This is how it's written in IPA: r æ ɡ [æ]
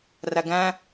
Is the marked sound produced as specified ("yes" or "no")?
no